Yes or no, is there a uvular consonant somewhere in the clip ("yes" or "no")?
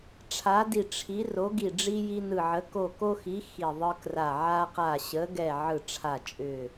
yes